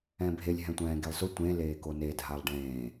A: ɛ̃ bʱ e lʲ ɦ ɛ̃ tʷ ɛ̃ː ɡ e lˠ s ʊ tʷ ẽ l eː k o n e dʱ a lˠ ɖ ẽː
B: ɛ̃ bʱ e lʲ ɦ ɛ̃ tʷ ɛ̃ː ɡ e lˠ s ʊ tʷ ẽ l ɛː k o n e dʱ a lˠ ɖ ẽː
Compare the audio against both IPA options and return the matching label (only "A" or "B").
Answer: A